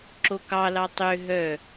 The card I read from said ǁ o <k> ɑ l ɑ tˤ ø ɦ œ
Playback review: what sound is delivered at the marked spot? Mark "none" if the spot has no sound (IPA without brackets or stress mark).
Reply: k